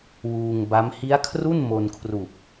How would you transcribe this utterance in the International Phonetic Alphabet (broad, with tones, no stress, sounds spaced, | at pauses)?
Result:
w uː˧ ŋ b a˦˥ m h i˦˥ a̯ kʰ r u˥˩ n m o˧ n kʰ r u˨˩ k̚